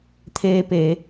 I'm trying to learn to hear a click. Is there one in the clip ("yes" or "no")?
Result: no